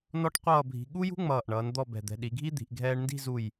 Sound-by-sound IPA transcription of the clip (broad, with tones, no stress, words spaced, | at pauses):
nɔ˥ʈqʷʌː˥˧bʱi̤˧ ɠu˥jṳ˥ ŋ͡mʌː˧˩ʔɳʌː˩˧n d̪ɔ˥˧bɛ̤˧˩d̪ɛ̤˧ ɗi˩˧ɡʱi˥d̪i̤˩˧ʔ ɡʱɛː˧ɳndi̤˥˧zu˧˩j